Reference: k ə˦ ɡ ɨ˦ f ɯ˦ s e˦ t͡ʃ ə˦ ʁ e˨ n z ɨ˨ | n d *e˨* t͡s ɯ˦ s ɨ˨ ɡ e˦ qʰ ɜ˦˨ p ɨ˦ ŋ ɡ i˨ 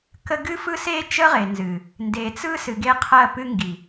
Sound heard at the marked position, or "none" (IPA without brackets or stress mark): e˨